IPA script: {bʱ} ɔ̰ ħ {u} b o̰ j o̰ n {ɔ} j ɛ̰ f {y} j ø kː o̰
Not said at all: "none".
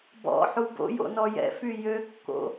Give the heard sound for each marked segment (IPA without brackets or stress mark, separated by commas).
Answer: b, u, ɔ, y